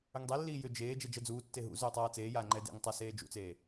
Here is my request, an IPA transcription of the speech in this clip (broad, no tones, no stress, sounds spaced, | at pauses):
ʏ ŋ dˤ e lː iː j ʏ d͡ʒ eː d͡ʒ ɛ d͡ʒ ɜ d͡z uː tː e ɦ ṵ z ʏː tˤ aː t͡s eː j aː ŋ͡ǃ ɛ d ḛ ŋ tˤ a s eː d͡ʒ ṵ t͡s eː